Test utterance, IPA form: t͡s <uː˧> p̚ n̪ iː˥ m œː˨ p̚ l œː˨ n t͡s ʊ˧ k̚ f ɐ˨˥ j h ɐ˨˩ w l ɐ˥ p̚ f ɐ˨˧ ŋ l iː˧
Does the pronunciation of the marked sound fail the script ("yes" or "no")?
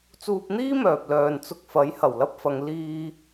no